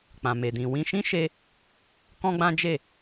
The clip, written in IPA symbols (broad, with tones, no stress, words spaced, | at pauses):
k͡pã˨me˨dĩ˨ wĩ˧ʃĩ˦ʃe˧ | kɔ̃˦ɡ͡bã˦d͡ʒe˦˨